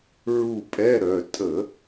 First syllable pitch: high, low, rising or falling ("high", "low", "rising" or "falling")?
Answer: falling